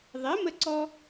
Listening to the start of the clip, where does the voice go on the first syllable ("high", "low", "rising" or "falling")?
rising